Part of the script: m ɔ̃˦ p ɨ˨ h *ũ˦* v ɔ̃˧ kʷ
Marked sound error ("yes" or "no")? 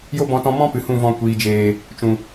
yes